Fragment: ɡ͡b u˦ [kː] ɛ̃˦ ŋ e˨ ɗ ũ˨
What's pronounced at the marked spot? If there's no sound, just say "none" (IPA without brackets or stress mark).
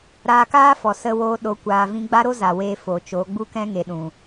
k